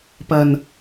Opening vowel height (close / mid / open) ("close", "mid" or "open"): open